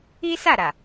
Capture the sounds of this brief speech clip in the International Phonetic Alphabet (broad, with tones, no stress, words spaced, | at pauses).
i˦sa˦˨ɾa˨